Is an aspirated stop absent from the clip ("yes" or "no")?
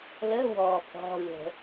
yes